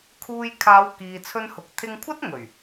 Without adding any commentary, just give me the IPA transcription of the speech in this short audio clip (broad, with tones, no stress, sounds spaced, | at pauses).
kʰ uː˧ j kʰ aː˨˧ w k iː˨ t͡sʰ ɵ˧ n h ʊ˨ k̚ t̪ʰ ɪ˧ ŋ kʷʰ ɐ˥ t̚ ŋ ɵ˨˩ ɥ